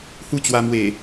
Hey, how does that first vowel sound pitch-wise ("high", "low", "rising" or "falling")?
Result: falling